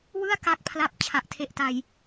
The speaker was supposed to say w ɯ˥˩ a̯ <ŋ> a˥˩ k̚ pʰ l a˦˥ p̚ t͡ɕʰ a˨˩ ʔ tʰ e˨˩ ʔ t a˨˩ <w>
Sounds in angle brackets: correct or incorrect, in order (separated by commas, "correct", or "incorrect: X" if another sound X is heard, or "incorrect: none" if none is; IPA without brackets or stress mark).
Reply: incorrect: k, incorrect: j